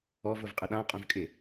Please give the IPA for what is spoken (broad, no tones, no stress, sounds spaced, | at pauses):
ɔ v ʊ v qʼ ə ɗ ã qʼ ũ v kʼ ɪ